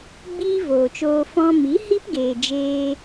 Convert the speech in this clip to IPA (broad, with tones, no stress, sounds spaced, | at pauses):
ɡ͡b iː˦ v oː˨ t͡ʃ oː˧ f ɔ̃˧ m i˨˦ h i˦ p ɡ eː˨ d͡ʒ eː˧